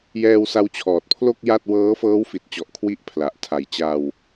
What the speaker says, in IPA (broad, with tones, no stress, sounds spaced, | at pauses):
j ɛː˧ w s a˦˥ w t͡ɕʰ ɔː˨˩ t̚ pʰ l o˥˩ k̚ j a˥˩ t̚ w ɤː˦˥ f ɤː˦˥ w f i˨˩ t̚ t͡ɕ ɔ˨˩ ʔ kʰ w i˦˥ ʔ pʰ l a˨˩ ʔ tʰ a˨˩ j t͡ɕ a˧ w